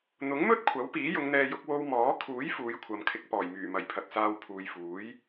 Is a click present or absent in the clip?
absent